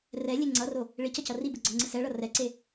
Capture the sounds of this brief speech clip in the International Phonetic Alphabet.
r ɛ lʲ e ŋ͡ǀ ʌ r o | ɭ i c ʌ c ʌ r i b ɯ ɡ͡ǀ ʌ ŋ͡ǀ ɯ s ɛ ɭ ʌ r ɛ ǀ e

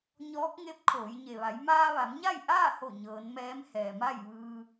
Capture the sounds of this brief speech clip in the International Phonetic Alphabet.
ɲ ɔː˧˥ k̚ ŋ e˧˥ p̚ kʰ oː˩˧ j ɲ e˩ ʋ a˩˧ j m aː˧ ʋ a˩˧ m ɲ a˥˨ j ʔ aː˥˨ h o˧˩ ɲ ɤː˩˧ n m ɛː˧˥ m h ɛː˩ m a˥˨ j ʋ ɯː˧

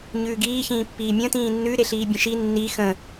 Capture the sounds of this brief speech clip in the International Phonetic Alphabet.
ɲ ʉː ɡ iː ç ĩː pː iː mʲ ə̃ t ĩː nː ʉ ɾ e ɬ iː bʲ ə̃ ʃ i nː i x ə̃

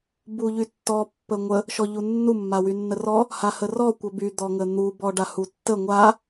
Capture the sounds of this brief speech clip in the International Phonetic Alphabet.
b u ʎ y tː ɔ pː ə ŋʷ ə | ʃ ɔ ʎ u nː u mː a w y nː ə r ɔ | h a h ə r ɔ kʷ ə b y d̪ ɔ ŋ ə n̪ u b ɔ ɖ a h u tː ə ŋʷ a

